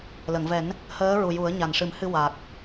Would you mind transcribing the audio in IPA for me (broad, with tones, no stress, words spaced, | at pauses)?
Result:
lə˨˩˨ŋvɛ˨˩˦n | həː˧˥ɹu˨˩ ju˨˩˦ə̯ɲa˨˩nʂɨ˨˩˦mhɨ˧ wa˨˩k̚